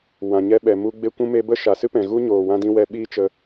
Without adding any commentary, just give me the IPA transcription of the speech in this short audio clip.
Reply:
w ã˨ ɲ ɛ˧ ɓ ɛ˨ m u˧ ɡ͡b e˦ kʷ ũ˦ m e˦ b ə˦ ʃ a˨ s ɨ˦ p ɛ̃˨ ɣ u˦ ɲ oː˨ w ã˧ d ĩ˧ w ɛ˧ ɓ iː˦ t͡ʃ ə˧

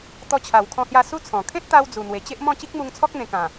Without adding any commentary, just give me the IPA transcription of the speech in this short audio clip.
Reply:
t̪ ɔ˧ t͡ɕʰ a˨˩ w kʰ ɔ̃˧ h j a˧ s u˦ t͡sʰ ɔ̃˨˩ kʰ ẽ˦ t̚ t̪ a˧ w d͡z u˨˩ n̪ w e˨˩ t͡ɕ e˦ ʔ m ɔ̃˥˧ t͡ɕ i˦ k̚ m u˧ ŋ t͡sʰ ɔ˦ k̚ n̪ ẽ˧ k ã˨˩

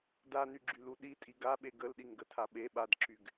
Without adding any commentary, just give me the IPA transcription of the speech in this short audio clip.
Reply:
d a n y ɡ͡ǁ y l u ɗ i tʼ i ɡ a ɓ e ɡ ə l ɗ i ŋ ɡ ə tʰ a ɓ e ɓ a d ǁ y ɡ

